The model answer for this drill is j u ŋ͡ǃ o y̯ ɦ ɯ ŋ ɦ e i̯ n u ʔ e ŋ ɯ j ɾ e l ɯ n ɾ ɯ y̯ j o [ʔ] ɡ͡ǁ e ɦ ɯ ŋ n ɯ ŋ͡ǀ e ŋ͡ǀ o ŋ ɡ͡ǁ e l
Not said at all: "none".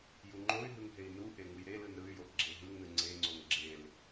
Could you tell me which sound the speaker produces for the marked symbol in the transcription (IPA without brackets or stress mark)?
ʔ